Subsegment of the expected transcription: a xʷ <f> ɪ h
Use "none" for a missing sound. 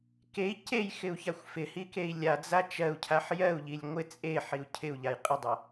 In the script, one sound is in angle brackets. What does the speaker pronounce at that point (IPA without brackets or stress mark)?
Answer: f